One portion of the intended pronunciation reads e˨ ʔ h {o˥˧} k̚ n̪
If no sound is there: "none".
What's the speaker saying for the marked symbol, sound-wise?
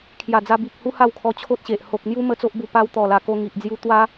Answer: o˨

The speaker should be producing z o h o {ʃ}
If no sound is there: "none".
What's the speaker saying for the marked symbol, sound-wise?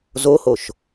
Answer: ʃ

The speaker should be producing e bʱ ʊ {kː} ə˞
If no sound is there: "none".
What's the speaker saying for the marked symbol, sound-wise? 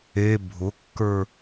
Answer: kː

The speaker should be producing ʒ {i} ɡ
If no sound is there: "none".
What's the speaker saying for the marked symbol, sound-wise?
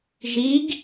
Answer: i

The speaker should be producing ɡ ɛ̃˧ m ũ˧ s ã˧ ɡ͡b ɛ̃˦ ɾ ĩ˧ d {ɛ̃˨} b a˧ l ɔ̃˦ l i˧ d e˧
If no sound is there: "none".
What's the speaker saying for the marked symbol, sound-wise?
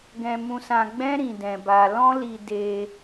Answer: ɛ̃˧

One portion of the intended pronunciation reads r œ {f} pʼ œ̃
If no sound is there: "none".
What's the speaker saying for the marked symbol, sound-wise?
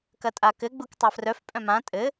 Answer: f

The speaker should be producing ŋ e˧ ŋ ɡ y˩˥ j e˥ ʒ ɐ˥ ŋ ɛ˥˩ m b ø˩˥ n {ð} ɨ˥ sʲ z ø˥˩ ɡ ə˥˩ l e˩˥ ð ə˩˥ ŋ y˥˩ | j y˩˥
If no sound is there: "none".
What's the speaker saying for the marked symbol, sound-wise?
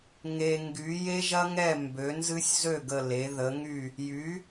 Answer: z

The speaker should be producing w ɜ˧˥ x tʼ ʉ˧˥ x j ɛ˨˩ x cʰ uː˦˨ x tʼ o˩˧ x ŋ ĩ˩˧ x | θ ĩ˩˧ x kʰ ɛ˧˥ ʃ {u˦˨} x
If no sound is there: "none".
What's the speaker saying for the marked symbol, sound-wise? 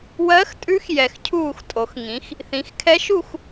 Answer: u˦˨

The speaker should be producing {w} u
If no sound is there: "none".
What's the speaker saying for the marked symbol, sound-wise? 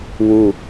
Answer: w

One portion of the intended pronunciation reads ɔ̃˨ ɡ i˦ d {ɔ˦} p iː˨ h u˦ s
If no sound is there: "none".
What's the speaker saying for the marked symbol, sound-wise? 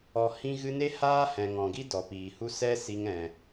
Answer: ɔ˨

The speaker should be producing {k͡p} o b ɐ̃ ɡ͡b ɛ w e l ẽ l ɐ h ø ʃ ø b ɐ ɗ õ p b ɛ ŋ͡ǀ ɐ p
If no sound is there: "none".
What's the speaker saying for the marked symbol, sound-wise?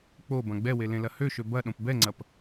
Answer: k͡p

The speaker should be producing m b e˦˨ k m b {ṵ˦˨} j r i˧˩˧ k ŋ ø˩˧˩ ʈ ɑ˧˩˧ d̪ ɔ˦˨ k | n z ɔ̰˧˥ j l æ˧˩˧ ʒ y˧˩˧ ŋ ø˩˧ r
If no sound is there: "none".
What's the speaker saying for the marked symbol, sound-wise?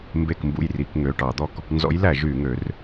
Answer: ṵ˦˨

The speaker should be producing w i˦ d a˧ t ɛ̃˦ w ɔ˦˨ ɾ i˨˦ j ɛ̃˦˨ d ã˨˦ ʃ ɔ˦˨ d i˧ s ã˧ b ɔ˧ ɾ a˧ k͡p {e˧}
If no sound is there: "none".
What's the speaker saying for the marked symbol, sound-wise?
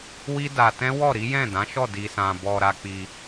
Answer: i˧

